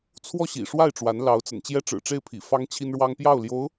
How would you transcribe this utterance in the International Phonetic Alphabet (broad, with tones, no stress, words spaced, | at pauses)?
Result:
t͡sʰwɔ˥˩ɕḭ˨˩ʂwa˥˩ɪ̯ ʈ͡ʂwa˧˥nlɑ˧˥ʊ̯t͡sə̰˨˩n t͡ɕjɛ˥ʈ͡ʂɻ̩˨˩ʈ͡ʂe˥˩ɪ̯pʰḭ˨˩ fɑ˥ŋt͡ɕʰi˥nɻwɑ˥ŋ pjɑ˥˩ʊ̯ljo˧˥ʊ̯